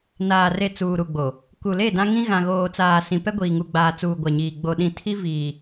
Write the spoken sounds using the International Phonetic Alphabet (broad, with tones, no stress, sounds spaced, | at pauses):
n aː˨ r e˨ t͡s uː˨ ɾ u˨ ɡ͡b o˨ | k u˨ l e˦˨ d ã˦ ŋ ĩ˦ ɣ ã˨ ɣ oː˨ t͡s aː˨ s ĩ˨ p ɛ˦ ɡʷ iː˨ ŋ u˨ ɡ͡b aː˨ t͡s uː˨ ɡʷ a˨ ɲ iː˨ ɡ͡b o˨ ɗ ĩ˨ tʰ i˦ v iː˨